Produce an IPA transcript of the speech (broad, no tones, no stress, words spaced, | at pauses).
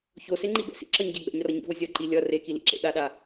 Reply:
çoseŋ͡ǃibɛ̰ sḭǁʌɲɟɛ ɡ͡bɛ̰ɲrʌɲḭvo zʲʌǃi lʲʌ rekilḭǁḛ ɗaɗa